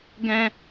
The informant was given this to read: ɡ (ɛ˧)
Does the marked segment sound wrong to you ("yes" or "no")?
yes